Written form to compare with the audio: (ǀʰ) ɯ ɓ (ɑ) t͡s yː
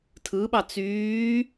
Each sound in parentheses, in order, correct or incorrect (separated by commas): incorrect, correct